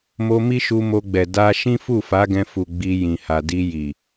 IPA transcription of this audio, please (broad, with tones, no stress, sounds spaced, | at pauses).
m o˧ m i˦ ʃ u˧ m o˧ ɡ͡b ɛ˨ d a˧ ʃ ĩ˦ f u˦˨ f a˨˦ ɡ ɛ̃˧ f u˨ ɡ͡b i˧ j ĩ˨ h a˨ d i˧ j i˨